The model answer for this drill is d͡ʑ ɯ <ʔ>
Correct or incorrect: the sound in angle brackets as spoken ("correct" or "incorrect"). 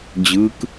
incorrect